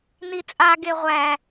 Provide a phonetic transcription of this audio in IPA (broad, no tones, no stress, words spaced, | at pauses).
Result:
nit͡sʼa ɡeʁʷæ